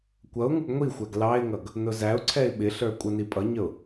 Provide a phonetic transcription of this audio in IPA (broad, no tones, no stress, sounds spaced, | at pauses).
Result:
kʷ ʌ ʊ̯ ŋ u ɡ ŋʷ i xʷ æ ɡ l ɑ ɪ̯ ŋ ʌ ɡ | n ʊ z æ ʊ̯ ǀʰ ɛ ɪ̯ ɓ ɪ ɬ ə˞ kʷʼ ʌ n i pʼ ʌ ɲ ə ʊ̯